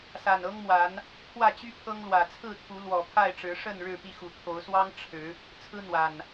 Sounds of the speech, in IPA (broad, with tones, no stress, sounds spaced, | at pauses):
s a˨˩ n ɤ˦ ŋ m w a˨˦ n | pʰ w ä˥˨ t͡ɕ y˦ pʰ ɤ˦ ŋ l w ä˨˩ t͡sʰ ɹ̩˥˨ t̪ʰ u˨˦ l w ɔ˨˩ pʰ a˥˨ ɪ̯ ʈ͡ʂ ɻ̩˨˦ ʂ ə˥˨ n ɻ ɻ̩˥˨ p i˥˨ x u˨˩ t̪ʰ o˨˦ ʊ̯ s w ɑ˦ ŋ ʈ͡ʂʰ ɻ̩˨˦ | t͡sʰ ɹ̩˦ n̪ w a˨˩ n